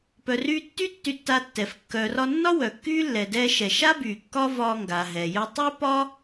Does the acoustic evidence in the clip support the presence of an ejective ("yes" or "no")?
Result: no